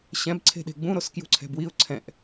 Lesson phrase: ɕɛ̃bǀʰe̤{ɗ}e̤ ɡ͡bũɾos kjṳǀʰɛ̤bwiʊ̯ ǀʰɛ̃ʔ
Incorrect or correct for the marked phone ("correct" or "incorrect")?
correct